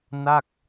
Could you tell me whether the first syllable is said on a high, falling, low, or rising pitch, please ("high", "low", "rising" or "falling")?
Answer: falling